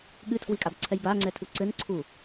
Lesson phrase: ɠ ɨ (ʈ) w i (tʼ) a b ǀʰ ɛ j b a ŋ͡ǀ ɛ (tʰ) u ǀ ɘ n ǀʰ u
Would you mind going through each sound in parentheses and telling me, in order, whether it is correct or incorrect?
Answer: incorrect, incorrect, correct

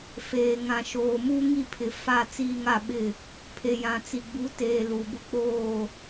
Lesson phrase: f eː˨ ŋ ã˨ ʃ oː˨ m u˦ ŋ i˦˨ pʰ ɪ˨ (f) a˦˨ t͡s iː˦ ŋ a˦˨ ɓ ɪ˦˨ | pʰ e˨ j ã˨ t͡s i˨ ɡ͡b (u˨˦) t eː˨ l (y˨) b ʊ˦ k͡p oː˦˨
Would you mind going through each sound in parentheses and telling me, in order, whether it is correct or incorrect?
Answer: correct, correct, incorrect

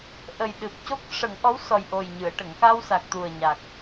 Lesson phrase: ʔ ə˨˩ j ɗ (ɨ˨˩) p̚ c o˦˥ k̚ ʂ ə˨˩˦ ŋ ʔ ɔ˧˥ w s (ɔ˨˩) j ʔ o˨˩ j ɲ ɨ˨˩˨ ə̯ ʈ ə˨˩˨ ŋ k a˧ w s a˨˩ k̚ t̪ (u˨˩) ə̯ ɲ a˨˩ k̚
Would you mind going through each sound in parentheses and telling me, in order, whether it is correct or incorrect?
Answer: correct, correct, correct

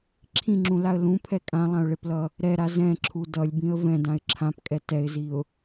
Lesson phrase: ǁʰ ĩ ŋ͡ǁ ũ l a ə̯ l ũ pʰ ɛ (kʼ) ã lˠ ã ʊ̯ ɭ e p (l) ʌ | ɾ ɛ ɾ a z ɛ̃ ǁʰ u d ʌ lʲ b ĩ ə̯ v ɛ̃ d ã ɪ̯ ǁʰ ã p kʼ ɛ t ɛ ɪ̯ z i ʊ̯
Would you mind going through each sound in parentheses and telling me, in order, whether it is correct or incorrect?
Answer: correct, correct

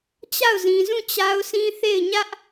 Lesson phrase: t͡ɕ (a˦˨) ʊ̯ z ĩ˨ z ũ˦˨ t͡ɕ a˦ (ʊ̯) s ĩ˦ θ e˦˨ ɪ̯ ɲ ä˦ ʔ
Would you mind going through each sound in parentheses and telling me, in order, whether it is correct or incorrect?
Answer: correct, correct

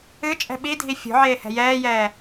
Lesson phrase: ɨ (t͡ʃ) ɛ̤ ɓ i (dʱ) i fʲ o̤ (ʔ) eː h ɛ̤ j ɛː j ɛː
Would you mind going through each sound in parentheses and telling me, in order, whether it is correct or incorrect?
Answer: incorrect, correct, incorrect

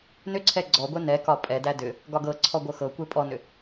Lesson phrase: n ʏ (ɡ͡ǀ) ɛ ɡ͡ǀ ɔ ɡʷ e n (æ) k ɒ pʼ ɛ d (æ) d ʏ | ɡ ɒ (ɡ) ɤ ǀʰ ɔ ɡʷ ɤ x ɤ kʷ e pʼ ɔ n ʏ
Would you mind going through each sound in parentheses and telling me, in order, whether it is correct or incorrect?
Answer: incorrect, incorrect, correct, correct

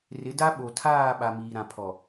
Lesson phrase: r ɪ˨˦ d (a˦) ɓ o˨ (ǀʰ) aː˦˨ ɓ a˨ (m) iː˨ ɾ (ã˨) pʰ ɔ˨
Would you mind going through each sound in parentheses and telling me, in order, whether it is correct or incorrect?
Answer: correct, incorrect, correct, correct

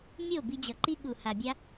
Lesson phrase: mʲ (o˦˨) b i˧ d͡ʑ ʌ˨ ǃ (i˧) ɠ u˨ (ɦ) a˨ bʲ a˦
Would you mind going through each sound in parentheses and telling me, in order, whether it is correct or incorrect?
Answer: correct, correct, incorrect

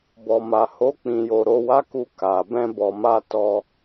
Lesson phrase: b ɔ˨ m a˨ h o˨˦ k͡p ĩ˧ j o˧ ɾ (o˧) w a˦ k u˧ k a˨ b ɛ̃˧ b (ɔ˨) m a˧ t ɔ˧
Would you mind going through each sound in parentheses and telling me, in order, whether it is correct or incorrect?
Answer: correct, correct

